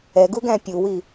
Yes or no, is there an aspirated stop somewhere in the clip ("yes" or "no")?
no